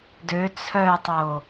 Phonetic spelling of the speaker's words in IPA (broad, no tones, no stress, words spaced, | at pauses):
dø t͡sʰœtˤo